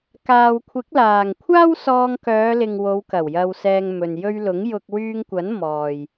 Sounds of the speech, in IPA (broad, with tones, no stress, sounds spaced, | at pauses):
k aː˨ w kʷʰ ɪ˨˥ k̚ l aː˨˩ ŋ kʷʰ aː˥ w s ɔː˧ ŋ k œː˨˧ l ɪ˨ ŋ w o˨˧ w k ɐ˨˩ w j ɐ˨ w s ɛː˨ ŋ m ɵ˨ n j ɵ˧ ɥ l ʊ˨˥ ŋ j ʊ˧ k̚ w yː˧ ŋ kʷ ɐ˨˥ n m ɔː˨ j